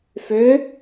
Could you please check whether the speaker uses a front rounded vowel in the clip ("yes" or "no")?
yes